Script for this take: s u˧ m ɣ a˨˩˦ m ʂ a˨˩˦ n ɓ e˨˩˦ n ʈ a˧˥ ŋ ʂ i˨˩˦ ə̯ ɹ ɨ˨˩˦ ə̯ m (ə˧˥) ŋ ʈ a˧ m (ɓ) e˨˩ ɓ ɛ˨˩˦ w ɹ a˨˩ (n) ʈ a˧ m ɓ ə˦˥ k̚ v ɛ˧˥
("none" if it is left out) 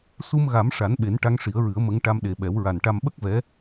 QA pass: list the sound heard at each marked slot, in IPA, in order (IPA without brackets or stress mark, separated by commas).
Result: ə˧˥, ɗ, n